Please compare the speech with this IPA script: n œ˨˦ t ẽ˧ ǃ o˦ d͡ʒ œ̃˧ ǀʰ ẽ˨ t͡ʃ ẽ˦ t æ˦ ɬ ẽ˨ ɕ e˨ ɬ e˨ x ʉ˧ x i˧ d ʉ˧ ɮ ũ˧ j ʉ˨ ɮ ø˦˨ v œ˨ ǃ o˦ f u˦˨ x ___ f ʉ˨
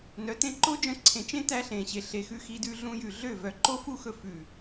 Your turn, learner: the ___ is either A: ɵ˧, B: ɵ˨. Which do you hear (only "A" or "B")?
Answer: A